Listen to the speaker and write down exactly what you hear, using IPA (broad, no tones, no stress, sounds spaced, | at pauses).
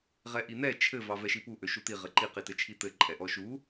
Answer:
ʁ ɛ ʔ i n̪ ɛ t͡ʃʰ ɘ v ɑ v ɛ ʃ i p u ʔ ø ʃ u t̪ i ʁ ɘ ǃ i q i t ɘ t͡ʃʰ i t̪ ɘ ǃʼ ɛ ʔ ɔ ʃ u